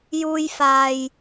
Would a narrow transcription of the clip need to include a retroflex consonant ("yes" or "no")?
no